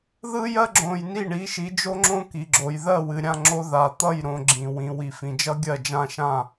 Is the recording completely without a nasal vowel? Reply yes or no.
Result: no